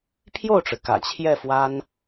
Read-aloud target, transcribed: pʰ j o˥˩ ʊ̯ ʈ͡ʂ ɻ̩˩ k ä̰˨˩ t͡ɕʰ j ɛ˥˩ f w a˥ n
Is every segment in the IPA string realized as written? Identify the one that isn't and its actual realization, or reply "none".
none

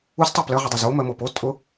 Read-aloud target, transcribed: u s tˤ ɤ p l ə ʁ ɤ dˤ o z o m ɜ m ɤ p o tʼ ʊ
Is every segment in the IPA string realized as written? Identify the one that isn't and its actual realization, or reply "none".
none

